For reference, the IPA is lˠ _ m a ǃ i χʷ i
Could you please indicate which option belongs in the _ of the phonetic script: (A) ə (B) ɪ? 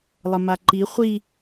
A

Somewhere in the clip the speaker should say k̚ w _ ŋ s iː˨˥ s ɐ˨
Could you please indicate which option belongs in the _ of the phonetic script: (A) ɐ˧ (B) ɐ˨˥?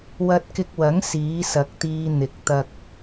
B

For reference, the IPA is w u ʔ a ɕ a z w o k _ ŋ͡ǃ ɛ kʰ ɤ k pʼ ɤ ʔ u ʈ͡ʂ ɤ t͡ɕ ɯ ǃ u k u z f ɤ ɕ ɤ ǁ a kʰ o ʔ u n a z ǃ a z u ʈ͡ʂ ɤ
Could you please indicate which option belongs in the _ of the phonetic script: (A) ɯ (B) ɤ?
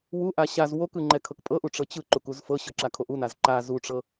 A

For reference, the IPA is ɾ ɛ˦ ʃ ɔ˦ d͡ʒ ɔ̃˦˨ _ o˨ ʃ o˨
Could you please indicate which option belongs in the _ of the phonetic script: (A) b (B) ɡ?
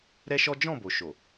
A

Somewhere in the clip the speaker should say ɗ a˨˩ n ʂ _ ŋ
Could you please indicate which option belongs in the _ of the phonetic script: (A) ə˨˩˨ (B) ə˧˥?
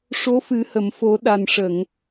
A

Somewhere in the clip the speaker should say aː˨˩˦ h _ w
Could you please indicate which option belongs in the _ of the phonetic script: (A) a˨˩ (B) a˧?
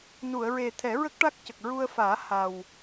A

